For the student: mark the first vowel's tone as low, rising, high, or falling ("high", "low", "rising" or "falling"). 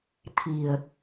low